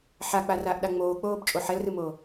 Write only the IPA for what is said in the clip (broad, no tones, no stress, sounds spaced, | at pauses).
ħ a k͡p a r aː ʔ ɗ a ŋ͡m oː k͡p oː b t͡ʃʼ o ħ ɛ l r ɨ m o